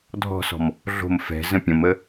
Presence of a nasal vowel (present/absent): present